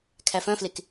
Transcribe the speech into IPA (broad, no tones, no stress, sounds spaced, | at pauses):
kʰ æ f œ̃ f l e k